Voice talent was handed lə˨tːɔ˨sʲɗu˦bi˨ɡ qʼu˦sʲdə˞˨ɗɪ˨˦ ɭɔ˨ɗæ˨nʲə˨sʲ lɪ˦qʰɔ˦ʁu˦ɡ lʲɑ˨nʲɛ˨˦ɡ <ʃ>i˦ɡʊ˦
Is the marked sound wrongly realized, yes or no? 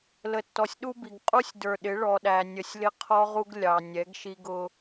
no